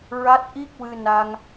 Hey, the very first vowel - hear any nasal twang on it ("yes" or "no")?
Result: no